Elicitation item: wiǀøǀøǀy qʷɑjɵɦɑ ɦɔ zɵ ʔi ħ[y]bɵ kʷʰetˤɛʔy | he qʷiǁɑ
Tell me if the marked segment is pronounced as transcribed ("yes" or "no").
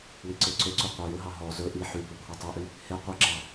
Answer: yes